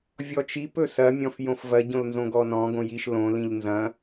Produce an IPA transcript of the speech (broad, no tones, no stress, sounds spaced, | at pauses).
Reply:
vʲ ɔ t͡ʃ i p ɵ s ɐ mʲ ɔ̃ f j õ f v ɐ ɟ õ l n z õ ɡ ɔ n ɔ̃ ɡ õ j i ʃ l õ l ĩ ʎ n z ɐ̃